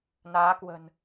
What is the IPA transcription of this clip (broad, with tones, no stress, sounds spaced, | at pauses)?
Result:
n aː˨˦ k w ə̤˨˩ n